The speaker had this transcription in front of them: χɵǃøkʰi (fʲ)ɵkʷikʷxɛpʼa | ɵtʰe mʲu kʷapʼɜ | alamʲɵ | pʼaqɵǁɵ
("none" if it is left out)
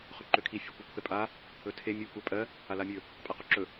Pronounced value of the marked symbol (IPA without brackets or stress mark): fʲ